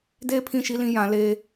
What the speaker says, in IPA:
d eː˦ pʰ ĩ˦˨ ʃ i˦ l ĩ˦ j ã˨˦ l e˦

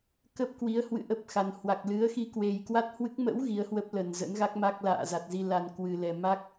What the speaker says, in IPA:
k ə˦˥ p̚ k w i˨˦ ə̯ h w ɨ̰˧˨ ʔ ə˦˥ p̚ x a˨˩ n h w a˨˩ k̚ l ɨ˨˦ ə̯ x i˧ k w e˨˩ j k w a˦˥ t̚ h w ɨ˦˥ k̚ m ə̰˧˥ w ɣ i˨˦ ə̯ h w ə˦˥ p̚ l ə˨˩ n z ə̰˧˥ n ɣ a˦˥ k̚ m a˦˥ k̚ l a̰ː˧˨ z a˨˩ t̚ z i˧ l a˧ n k w ɨ˨˩ l ɛ˨˩ m a˦˥ k̚

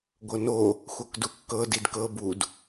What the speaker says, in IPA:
ɡʷ ɤ n o | xʷ ɤ k d u kː ɤ d i d k ɤ b u d

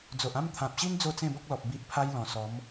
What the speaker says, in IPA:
d͡z o˨ ʔ ã˥˧ m t̪ʰ ã˨ p̚ ɕ i˦ n d͡z o˥˧ t͡s ẽ˥˧ b ɔ˦ k̚ l ɔ˨ p̚ b i˦ ʔ pʰ a˦ j l ɔ̃˨˩ s ɔ˨˦ m

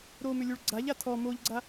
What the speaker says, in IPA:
ɾ o m ʏ lʲ u ɭ ɡ͡ǀ a ʎ a tʰ ɔ m o ʎ ɡ͡ǀ a

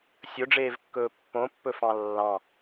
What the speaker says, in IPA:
sʲ ɵ ɖ͡ʐ eː v kː ɵː pː õ pː ɵ f ɑ̃ lː ɑ̃

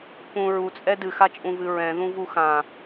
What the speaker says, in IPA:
p ũ ɹ u t͡sʼ ɛ d ɨ x a t͡ʃʼ ũ v ɨ ɹ ɛ̃ ð ũ v u x ã

